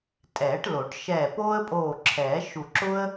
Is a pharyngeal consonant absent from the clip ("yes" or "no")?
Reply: yes